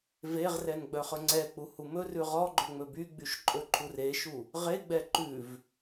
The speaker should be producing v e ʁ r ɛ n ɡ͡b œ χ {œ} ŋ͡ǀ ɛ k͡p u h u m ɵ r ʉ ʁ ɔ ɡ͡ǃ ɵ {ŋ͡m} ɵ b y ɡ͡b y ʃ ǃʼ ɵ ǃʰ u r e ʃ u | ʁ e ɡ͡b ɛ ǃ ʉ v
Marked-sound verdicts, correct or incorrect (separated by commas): incorrect, correct